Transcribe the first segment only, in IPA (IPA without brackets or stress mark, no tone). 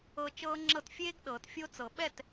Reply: ɤ